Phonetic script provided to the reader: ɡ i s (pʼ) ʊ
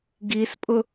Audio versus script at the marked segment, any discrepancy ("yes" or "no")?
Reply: no